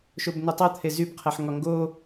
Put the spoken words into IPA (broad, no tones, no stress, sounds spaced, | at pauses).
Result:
ʃ o b n ə tˤ ɤ t̪ʰ e z y b qʰ ɛ ħ ŋ ɒ ŋ ɡ o